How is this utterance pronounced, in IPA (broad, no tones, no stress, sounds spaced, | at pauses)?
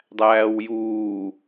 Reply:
dˤ æː w j uː